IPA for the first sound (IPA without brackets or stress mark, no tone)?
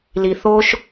l